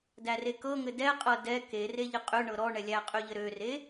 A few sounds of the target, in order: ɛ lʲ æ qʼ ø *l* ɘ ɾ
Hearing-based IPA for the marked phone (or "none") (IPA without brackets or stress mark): ʎ